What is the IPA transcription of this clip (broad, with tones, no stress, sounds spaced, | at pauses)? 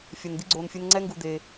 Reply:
fʲ ɛ˧ n d̪ i˦ ɡ͡ǀ oː˧ n fʲ e˦ n ŋ͡ǀ ɛ˦ ŋ ɡ u˧ d̪ e˧